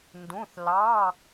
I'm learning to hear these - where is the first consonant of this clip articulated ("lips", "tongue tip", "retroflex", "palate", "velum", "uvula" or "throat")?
tongue tip